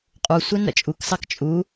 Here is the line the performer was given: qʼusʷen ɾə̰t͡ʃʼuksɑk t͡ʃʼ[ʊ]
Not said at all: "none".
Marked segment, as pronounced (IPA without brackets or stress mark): u